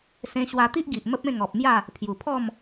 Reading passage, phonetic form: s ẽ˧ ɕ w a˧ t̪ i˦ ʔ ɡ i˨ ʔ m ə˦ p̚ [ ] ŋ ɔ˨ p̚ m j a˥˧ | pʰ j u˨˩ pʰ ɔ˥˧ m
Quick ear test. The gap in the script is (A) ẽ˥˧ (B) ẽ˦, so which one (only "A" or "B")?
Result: A